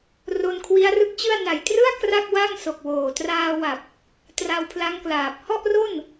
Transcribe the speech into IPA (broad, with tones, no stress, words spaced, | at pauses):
ro˧nkʰwi˦˥a̯rɯ˦˥k̚t͡ɕɯ˥˩a̯ na˨˩jtrɯ˥˩a̯ kra˥˩k̚wa˥˩ŋso˨˩k̚woː˨˩ traː˧wa˨˩p̚ | tra˧wpʰla˦˥ŋklaː˨˩p̚ hɔ˥˩ʔro˥˩n